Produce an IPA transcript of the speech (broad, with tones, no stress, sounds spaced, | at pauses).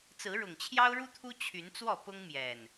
t͡s ɹ̩˨˦ ɻ ʊ˨˩ ŋ t͡ɕʰ j ɑ˦ ʊ̯ ɻ u˦ t̪ʰ u˦ t͡ɕʰ y˨˦ n t͡s w ɔ˥˨ p ʊ˦ ŋ m j ɛ˨˩ n